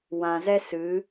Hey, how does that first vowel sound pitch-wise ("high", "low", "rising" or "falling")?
low